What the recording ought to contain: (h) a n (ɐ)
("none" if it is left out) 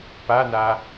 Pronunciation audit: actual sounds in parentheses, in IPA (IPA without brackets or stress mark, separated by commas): p, a